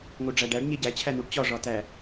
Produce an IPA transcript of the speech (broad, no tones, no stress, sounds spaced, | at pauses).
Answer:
ŋ o ɖ͡ʐ æ ɖ æ ɖ ɲ e ɟ æ t͡ɕʰ æ n u ɖ t͡ɕ ɒ ʐ ɒ t æ